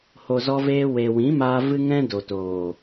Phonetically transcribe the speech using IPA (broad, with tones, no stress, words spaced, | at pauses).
ho˨zɔ˧veː˧ we˨ wĩ˨˦maː˧ vɨ˦ŋɛ̃˦ do˨toː˨